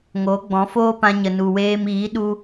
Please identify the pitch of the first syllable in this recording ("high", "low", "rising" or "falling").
rising